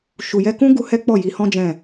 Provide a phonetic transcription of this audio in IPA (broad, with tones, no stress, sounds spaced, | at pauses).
ʃ u˨ j ɛ˧ k ũ˦ ɡ u˦ h ɛ˦ k͡p ɔ˦˨ j i˨˦ h ɔ̃˦ d͡ʒ ɛ̃˦˨